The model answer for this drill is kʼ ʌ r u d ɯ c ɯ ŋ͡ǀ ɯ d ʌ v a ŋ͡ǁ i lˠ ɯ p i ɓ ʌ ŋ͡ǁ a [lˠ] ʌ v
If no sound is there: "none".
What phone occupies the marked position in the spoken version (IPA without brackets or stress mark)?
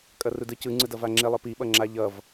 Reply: ʎ